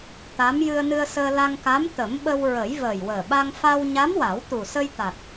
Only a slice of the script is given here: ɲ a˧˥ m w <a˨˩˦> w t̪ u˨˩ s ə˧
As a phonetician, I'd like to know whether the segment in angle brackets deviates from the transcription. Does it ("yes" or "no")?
no